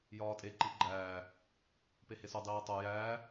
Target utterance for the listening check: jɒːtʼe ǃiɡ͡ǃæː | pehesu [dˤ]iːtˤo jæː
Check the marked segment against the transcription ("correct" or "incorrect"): correct